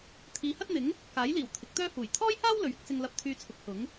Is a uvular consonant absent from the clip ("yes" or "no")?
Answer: yes